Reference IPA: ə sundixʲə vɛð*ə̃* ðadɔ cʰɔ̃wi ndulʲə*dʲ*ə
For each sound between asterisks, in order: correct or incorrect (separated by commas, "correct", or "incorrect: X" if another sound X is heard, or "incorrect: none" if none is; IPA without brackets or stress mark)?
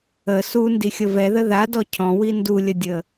incorrect: ə, correct